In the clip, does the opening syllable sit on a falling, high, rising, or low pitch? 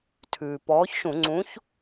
low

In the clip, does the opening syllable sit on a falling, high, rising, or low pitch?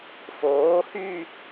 rising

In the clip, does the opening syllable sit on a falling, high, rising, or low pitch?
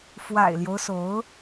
low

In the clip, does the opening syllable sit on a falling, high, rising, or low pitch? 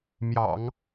low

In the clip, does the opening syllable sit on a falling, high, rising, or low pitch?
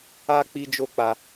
high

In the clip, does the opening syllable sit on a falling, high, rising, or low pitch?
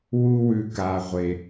high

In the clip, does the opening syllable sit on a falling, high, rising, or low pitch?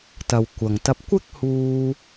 low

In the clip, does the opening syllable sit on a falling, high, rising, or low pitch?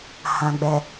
low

